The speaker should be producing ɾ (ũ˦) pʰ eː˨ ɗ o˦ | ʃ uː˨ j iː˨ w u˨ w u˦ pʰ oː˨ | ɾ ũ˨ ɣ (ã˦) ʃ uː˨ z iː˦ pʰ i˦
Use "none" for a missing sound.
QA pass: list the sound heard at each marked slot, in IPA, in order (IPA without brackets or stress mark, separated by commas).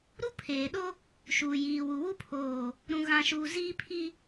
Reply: u˦, ã˨